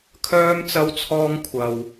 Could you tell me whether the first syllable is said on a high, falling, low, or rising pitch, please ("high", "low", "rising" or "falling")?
high